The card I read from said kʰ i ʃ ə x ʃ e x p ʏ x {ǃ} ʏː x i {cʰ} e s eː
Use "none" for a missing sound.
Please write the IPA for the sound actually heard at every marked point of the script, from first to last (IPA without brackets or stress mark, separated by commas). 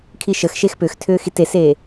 tʰ, t